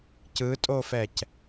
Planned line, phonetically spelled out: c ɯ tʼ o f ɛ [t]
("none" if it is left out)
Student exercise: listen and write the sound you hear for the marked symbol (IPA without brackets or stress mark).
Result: c